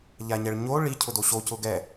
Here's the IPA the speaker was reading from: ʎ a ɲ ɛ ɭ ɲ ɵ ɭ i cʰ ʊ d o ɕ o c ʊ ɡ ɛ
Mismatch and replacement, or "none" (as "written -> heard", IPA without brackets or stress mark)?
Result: ɵ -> o